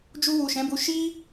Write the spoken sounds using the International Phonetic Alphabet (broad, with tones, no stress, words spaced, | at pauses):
d͡ʒu˧wu˨ ʃɛ̃˨˦bu˧ ʃi˦